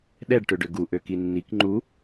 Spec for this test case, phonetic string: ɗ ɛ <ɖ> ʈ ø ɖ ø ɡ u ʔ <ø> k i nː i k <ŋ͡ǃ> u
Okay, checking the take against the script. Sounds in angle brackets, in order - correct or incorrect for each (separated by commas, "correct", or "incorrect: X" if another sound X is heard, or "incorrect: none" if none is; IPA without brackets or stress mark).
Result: correct, correct, correct